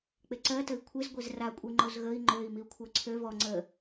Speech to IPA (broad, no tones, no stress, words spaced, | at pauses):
k͡peǀɜ təi̯kʷʰez ɡʷezra kʷʼiŋ͡ǃozɣəi̯ ŋ͡ǃøi̯ miu̯kʷʰɜǀʰø vɔ ŋ͡ǀə